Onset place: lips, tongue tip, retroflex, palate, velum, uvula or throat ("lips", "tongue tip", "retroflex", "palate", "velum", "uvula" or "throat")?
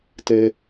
tongue tip